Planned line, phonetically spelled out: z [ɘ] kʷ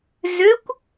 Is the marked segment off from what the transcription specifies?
yes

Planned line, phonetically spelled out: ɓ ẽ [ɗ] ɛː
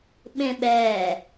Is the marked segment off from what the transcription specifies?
yes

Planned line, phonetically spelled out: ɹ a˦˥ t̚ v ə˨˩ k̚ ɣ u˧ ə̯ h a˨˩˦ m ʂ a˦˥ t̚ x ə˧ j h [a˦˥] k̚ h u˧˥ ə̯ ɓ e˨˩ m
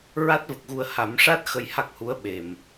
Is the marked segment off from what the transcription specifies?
no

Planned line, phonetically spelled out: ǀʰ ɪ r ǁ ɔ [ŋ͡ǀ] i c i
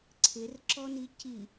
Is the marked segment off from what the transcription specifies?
yes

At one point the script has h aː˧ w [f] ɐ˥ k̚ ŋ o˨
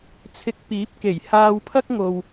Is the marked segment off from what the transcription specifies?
yes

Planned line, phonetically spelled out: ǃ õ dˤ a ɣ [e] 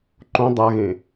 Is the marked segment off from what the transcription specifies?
yes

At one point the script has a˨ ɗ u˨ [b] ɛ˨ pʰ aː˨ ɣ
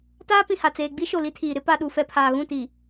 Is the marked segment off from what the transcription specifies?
yes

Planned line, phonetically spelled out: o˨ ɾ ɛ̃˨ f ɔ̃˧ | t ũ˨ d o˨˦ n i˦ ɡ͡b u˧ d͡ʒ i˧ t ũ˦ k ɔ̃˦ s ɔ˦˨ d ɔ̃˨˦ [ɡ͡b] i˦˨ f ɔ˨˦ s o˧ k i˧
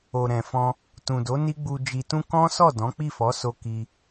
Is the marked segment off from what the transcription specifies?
yes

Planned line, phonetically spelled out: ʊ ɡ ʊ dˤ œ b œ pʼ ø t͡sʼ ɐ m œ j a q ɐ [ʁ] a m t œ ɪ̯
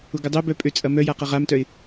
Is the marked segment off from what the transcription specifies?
no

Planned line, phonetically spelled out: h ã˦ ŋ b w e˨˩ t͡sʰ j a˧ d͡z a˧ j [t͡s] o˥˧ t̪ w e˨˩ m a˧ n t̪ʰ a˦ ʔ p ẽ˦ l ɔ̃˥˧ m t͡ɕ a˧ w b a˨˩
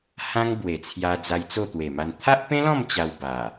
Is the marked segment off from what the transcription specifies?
no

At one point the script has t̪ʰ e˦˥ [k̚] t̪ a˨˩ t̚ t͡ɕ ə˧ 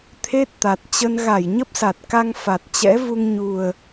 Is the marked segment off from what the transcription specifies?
yes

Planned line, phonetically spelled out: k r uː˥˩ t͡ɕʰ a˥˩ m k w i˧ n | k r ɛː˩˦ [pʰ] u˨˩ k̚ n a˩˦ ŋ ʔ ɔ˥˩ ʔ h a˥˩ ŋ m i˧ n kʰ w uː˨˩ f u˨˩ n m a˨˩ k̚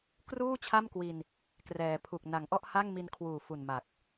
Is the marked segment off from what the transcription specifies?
no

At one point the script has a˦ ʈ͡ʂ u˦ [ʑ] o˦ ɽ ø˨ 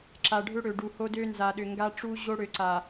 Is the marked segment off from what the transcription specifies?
no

